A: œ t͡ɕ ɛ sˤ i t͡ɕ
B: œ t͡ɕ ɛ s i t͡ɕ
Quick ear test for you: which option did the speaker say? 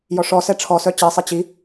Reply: A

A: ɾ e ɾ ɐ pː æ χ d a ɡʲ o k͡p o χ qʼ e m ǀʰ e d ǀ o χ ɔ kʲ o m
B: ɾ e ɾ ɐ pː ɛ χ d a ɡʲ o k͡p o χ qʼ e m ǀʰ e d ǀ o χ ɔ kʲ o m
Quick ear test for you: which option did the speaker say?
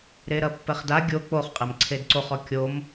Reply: B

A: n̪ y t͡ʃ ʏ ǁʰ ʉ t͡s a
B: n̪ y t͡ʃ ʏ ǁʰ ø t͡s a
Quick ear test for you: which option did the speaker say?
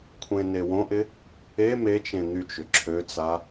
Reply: B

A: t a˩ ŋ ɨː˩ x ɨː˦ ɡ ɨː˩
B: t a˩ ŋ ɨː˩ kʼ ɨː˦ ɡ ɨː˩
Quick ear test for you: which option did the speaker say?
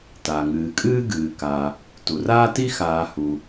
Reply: B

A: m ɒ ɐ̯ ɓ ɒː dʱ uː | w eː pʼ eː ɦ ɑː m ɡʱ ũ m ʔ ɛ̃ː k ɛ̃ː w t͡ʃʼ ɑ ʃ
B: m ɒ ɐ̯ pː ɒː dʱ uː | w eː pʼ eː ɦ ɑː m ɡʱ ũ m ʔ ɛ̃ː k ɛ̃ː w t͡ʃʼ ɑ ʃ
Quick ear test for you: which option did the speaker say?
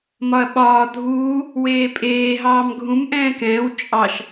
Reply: A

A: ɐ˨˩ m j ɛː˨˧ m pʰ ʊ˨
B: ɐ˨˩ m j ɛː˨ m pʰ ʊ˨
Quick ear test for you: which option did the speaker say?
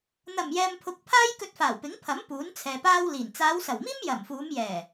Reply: B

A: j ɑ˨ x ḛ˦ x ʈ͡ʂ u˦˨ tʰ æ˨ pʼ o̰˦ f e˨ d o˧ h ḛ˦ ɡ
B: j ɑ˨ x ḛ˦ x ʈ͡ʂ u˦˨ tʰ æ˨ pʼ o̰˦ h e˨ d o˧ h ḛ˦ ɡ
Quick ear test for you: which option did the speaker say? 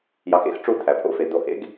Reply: A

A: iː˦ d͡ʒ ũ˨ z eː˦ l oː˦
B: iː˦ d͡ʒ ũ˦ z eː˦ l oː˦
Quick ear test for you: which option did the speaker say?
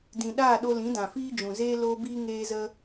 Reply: A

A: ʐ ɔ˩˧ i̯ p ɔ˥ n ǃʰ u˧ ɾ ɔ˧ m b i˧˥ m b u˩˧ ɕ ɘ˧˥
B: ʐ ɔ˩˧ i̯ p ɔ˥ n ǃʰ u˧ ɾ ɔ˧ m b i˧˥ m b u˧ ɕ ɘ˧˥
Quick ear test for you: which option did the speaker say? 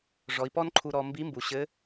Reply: A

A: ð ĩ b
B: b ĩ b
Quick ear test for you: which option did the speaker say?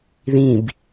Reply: A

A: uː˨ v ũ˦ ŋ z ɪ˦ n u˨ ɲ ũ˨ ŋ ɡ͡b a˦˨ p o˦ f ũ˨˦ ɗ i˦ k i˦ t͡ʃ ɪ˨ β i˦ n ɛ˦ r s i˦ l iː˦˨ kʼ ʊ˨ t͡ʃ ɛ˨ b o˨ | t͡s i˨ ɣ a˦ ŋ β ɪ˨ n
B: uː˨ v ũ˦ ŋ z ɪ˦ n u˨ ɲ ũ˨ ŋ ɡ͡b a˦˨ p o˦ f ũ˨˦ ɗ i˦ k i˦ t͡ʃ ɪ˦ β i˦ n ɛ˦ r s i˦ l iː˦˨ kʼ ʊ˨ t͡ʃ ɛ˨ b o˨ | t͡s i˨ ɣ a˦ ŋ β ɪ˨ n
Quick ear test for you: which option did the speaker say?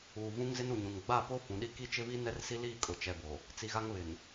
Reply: B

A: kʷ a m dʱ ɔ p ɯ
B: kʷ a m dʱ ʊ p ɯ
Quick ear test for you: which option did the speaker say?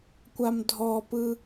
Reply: A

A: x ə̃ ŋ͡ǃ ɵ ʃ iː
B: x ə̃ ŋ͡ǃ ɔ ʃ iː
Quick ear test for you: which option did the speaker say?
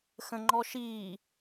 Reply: B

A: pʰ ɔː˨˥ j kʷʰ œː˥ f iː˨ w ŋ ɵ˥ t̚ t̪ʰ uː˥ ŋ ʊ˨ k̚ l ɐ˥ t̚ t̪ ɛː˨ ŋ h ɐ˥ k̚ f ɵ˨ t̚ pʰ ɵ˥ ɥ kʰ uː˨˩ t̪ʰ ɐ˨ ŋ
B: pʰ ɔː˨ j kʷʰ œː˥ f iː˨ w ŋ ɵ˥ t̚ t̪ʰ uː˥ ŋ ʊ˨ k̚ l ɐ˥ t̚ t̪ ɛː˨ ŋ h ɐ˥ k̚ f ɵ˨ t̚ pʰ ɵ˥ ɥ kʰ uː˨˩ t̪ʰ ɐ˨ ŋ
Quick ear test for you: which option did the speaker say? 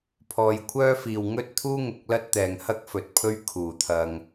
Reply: B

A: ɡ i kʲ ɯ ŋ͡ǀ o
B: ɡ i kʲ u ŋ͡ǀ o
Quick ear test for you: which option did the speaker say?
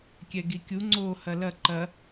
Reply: B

